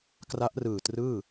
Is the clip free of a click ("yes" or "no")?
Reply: yes